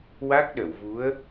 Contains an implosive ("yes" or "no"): yes